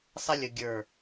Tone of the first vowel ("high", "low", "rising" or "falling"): high